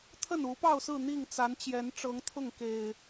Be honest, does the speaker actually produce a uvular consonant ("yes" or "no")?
no